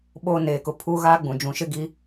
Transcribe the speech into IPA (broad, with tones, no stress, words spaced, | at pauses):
ɓoː˦neː˨kʊ˨ pʰuː˦ ɣaː˦ɡ͡bũ˨ d͡ʒũ˨ʃɪ˦ ɡi˦